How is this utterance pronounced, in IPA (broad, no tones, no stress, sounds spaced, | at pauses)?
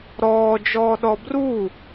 ɾ ɔː d͡ʒ ɔː ɗ ɔ b r u